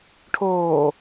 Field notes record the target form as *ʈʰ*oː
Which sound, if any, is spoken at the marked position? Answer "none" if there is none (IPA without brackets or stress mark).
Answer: ʈʰ